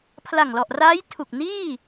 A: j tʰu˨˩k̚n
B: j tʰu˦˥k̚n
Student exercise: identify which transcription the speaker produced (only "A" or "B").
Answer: A